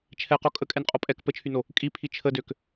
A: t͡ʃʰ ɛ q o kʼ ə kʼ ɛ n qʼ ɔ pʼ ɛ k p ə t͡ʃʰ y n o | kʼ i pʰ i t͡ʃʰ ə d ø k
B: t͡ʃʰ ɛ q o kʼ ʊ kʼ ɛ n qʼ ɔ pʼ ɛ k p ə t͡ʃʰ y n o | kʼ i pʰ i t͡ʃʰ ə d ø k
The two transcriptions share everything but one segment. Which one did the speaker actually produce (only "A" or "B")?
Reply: A